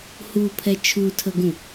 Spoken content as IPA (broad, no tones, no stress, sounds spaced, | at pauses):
h u pʰ ɛ t͡ʃʰ u tʰ ə ɡ ũ